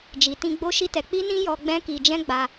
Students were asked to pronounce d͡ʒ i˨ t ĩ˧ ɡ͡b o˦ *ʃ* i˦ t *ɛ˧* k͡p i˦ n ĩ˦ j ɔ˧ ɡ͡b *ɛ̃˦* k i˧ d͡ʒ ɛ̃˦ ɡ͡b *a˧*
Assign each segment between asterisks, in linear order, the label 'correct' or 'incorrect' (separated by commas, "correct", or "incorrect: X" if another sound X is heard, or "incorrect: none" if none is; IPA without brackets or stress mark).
correct, correct, correct, correct